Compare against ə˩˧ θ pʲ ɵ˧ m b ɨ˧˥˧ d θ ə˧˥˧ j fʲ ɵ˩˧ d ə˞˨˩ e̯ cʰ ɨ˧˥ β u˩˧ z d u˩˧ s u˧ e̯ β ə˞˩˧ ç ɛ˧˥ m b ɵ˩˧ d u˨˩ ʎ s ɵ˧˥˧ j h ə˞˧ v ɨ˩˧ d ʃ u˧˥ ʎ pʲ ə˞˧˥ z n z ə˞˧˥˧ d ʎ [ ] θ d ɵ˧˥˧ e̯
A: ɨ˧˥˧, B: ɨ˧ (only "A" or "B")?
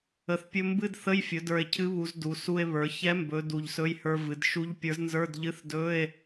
A